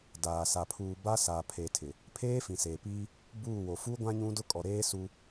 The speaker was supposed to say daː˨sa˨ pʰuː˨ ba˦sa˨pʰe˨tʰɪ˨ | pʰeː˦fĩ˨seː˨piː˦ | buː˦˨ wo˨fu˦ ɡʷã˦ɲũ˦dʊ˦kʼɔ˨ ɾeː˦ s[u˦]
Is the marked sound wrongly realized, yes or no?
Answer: no